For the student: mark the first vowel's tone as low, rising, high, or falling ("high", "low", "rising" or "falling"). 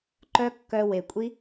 high